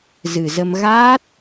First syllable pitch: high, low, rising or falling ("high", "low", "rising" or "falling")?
low